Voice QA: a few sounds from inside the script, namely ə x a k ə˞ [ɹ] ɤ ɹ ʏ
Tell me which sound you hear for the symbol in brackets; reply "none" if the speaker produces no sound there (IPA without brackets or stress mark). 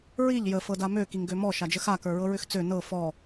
ɹ